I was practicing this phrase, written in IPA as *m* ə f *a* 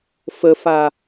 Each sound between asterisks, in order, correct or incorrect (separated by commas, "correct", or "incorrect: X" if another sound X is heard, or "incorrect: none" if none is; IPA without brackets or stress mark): incorrect: f, correct